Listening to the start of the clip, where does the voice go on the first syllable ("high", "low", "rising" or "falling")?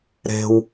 high